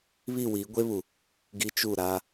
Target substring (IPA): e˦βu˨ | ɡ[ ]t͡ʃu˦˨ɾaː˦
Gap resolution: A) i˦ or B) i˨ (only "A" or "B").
A